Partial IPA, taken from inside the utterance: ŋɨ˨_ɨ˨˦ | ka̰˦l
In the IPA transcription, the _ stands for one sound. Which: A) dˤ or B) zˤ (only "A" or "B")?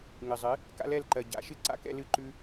B